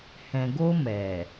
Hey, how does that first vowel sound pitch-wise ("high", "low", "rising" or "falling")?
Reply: low